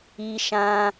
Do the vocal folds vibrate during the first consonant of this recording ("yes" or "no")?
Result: no